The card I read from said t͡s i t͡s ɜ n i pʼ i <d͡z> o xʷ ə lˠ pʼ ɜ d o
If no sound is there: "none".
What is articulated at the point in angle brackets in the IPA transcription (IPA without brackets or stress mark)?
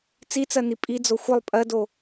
d͡z